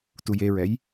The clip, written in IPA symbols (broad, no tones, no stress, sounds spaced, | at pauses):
t u j e ɹ ɛ j